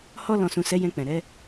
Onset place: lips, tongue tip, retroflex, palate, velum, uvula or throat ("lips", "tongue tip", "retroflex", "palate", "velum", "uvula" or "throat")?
throat